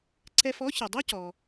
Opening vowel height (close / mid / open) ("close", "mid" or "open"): mid